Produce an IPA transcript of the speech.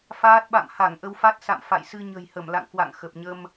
f aː˦˥ t̚ ɓ a̰˧˨ m h a˧˩ ŋ ʔ ə˧ w f a˦˥ t̚ s a̰˧˨ m f a̰˧˨ j s ɨ˧ ɲ ə̤˨˩ j h ə˧˩ m l a̰˧˨ ŋ k w a̰˧˨ ŋ x ə˨˩ p̚ ɲ ə˧ m

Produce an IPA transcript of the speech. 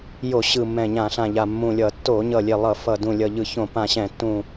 j o˧˩˧ ɕ ɯ˨˩ mː ɛ̃˨˩ ɲ ã˧˩˧ ɬ ã˨˩ ʎ a˨˩ mː ũ˨˩ lʲ ʌ˧˩˧ tː o˧˩˧ ɲ ʌ˨˩ lʲ e˨˩ lˠ ʌ˧˩˧ f ʌ˨˩ d ũ˨˩ lʲ ʌ˨˩ ʎ ɯ˧˩˧ ç õ˧˩˧ p ã˨˩ ɕ ɛ̃˧˩˧ tː ũ˨˩

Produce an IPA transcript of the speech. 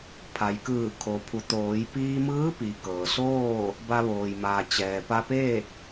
pʰ a˩ j k ɯː˧˩ kʰ o˩ pʰ u˩˧ t̪ oː˩˧ j p iː˧ m ɯː˧˥ p i˩ k ɤː˩ s oː˥˨ | b a˧ ʋ oː˩ j m aː˩ t͡ɕ ɛː˩ p a˧ p eː˥˨ k̚

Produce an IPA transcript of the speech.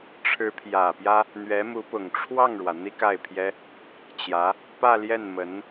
ʈ͡ʂʰ ɻ̩˧˥ pʰ j ä˨˩ p j ä˥ | n̪ ɥ ɛ˧˥ m u˧˥ p ʊ˨˩ ŋ ʈ͡ʂʰ w ɑ˥˩ ŋ ɻ w ä˩ n̪ i˥ k a˥˩ ɪ̯ pʰ j ɛ˥ | t͡ɕ j ä˧˥ | p ä˥˧ l j ɛ˥˩ n m ə˧˥ n

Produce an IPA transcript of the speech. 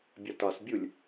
bʲ ɒ t ɒ s bʲ u lʲ

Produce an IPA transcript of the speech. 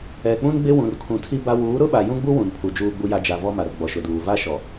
ɛ˨ k͡p ũ˦ n ɡ͡b ɪ˦ w ũ˨ r kʰ ũ˨ tʰ i˦ b a˦ w uː˨˦ ɾ ʊ˦ ɓ a˨ j ũ˦ ɡ͡b u˦ w ũ˨ n pʰ u˨ d͡ʒ uː˨ ɡ͡b u˨ j a˨ d͡ʒ a˨ v ɔ˦ m a˨ r ɡ͡b ɔ˨ ʃ ʊ˨ d uː˨ v a˦ ʃ ɔ˨

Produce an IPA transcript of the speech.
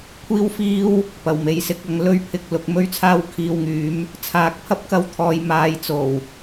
kʷʰ iː˥ w f iː˥ w | p ɐ˨˩ w m e˨˧ j s ɪ˨˥ k̚ ɐ˨˥ ŋ l ɵ˥ ɥ pʰ ɪ˧ k̚ l ʊ˨˥ k̚ m ɵ˥ ɥ t͡sʰ aː˥ w kʰ iː˧ w ŋ yː˨˥ m | t͡sʰ aː˨˥ k̚ pʰ ɐ˥ p̚ k ɐ˥ w t̪ʰ ɔː˧ j m aː˧ j t͡s o˨˩ w

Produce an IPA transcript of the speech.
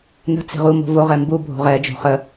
n ə̤ t͡s e̤ ʁ u m o̤ v o ʁ ɛ m b u bʱ o̤ ʁ ɛ d͡ʒ o̤ χ ə

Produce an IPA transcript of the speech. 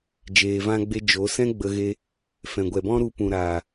d͡ʒ eː˧ v ã˦ ɡ͡b e˦ d͡ʒ o˨˦ s ɛ̃˦ ɡ͡b ə˧ ɣ e˧ | f ɛ̃˨ ɡʷ ɛ˨ b ɔ̃˦ ɾ u˧ p ũ˨ ɾ aː˨

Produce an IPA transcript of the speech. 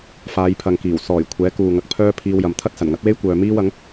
f aː˨˧ j pʰ ɐ˨ ŋ k iː˨˩ w s ɔː˨˩ j kʷʰ ɛː˨˥ k uː˨ ŋ ɐ˨˥ k̚ pʰ œː˥ pʰ iː˧ w j ɐ˨ m t̪ʰ ɐ˥ t̚ s ɐ˨˩ n ŋ ɐ˨˥ t̚ w e˥ j kʷ œː˨ m iː˥ w ɐ˨˥ ŋ

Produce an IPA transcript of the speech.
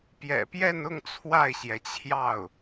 p j ɛ̰˨˩ p j ɛ˥˧ n ʊ˥˧ ŋ t͡sʰ w a˥˩ ɪ̯ ɕ j ɛ˩ t͡ɕʰ j ɑ˥˩ ʊ̯

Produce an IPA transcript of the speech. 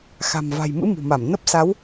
x a̤˨˩ m v a̤˨˩ j m ɨ̰˧˥ m ṳ˨˩ m a˧˩ m n ə˦˥ p̚ s a˨˦ w

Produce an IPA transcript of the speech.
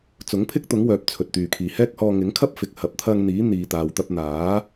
t͡s ʊ˨˥ ŋ pʰ ɪ˥ k̚ t̪ ʊ˨˥ ŋ w œː˨ p̚ t͡sʰ ɵ˨ t̚ t̪ yː˨ kʰ iː˨ h ɛː˥ k̚ h ɔː˧ ŋ ɪ˨˥ ŋ kʰ ɐ˥ p̚ f ɪ˨ k̚ h ɐ˨ p̚ t̪ʰ ɐ˧ ŋ n̪ iː˨˥ n̪ iː˨ t̪ aː˨ w t̪ ɐ˧ p̚ n̪ aː˨˥

